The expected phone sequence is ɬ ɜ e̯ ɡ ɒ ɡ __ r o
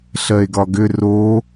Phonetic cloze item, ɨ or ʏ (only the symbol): ʏ